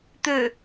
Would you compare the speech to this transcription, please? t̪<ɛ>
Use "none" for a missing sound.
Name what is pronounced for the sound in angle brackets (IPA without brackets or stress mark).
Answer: ø